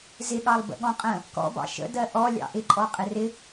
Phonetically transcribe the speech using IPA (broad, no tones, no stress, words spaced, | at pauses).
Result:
zɪɠɑlˠ bə̰ɠɔ̃qʼə̃ | kɔ̰bɑ̰ ʃə̰ dɜʔɔ lʲɑ̰ʔɪǃʼɔ qʼɪrɪ